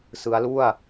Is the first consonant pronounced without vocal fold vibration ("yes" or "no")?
yes